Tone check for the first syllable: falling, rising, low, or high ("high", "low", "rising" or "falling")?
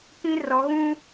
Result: high